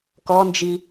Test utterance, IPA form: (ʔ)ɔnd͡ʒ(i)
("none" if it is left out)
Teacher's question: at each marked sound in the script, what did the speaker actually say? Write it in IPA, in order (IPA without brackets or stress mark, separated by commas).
k, i